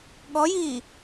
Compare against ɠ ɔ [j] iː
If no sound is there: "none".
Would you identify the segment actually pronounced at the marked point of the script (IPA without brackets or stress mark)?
j